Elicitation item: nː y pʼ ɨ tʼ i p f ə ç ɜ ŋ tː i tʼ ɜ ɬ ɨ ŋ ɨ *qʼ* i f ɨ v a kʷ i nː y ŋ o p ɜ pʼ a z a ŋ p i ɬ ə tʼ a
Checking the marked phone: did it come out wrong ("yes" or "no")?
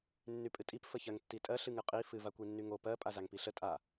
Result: no